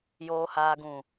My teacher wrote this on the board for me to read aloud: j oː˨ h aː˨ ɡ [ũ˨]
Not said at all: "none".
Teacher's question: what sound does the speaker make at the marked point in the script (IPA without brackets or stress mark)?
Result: ũ˨